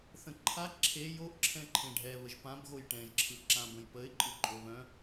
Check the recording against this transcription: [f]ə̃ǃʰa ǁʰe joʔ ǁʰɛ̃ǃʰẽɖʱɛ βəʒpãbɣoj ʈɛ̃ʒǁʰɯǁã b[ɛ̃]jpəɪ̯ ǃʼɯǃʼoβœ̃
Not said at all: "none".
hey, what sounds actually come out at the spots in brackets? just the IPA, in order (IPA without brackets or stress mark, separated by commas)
θ, ə̃